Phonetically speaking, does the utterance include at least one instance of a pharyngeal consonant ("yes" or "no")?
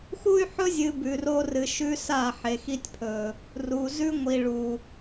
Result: yes